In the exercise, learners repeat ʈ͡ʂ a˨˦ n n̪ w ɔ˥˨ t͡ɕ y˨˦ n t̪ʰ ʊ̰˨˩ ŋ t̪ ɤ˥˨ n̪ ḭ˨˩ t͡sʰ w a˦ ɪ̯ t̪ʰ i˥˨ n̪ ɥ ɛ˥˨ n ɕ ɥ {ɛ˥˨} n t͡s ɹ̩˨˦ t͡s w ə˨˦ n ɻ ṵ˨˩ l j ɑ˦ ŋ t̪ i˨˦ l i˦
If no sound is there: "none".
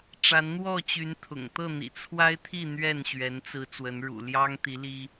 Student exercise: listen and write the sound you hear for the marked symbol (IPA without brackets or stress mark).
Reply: ɛ˨˦